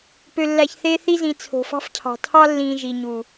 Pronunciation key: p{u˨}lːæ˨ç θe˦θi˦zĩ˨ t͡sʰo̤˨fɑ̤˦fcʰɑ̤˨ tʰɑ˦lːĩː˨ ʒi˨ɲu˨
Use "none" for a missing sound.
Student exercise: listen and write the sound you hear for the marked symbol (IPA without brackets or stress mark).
ø˨